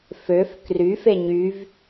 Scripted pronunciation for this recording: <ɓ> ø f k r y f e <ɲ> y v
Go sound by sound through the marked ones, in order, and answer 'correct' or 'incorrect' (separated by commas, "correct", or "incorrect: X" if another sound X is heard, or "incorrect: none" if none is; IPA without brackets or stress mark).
incorrect: f, correct